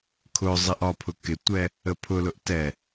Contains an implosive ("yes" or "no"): no